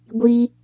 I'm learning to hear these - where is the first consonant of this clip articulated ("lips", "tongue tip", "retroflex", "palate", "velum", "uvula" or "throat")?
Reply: velum